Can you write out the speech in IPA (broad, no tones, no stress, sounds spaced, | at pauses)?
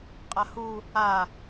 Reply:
qʼ a h u | a